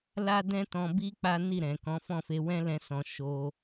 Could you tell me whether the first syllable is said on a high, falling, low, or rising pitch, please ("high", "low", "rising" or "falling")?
high